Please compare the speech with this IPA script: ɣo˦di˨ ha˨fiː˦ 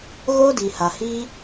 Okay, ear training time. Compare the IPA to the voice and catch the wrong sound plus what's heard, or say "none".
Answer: f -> h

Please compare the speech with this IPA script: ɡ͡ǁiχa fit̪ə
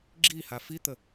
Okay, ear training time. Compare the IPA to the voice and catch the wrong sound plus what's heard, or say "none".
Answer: χ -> h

